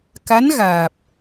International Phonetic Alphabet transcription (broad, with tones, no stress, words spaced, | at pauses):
ka˧˥nɣaː˨˩p̚